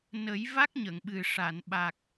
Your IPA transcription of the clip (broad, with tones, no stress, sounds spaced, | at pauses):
n ə˨˩˦ j v a˦˥ k̚ ɲ ə˨˩˨ ŋ ɓ ɨ˨˩ ʂ a˨˩˨ n ɓ a˨˩ k̚